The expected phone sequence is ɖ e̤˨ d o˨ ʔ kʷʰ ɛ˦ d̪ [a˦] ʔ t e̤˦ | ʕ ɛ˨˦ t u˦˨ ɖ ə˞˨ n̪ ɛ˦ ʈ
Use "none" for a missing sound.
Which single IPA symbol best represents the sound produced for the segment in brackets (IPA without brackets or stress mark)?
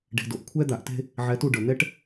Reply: a˨